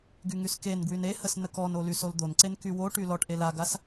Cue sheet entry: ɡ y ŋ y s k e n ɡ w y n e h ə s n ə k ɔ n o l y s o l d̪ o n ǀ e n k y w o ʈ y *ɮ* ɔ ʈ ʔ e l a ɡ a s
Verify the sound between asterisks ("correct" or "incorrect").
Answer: incorrect